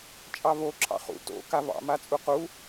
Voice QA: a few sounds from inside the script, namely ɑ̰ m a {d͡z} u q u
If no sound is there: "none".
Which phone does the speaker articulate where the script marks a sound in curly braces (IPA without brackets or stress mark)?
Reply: t͡sʼ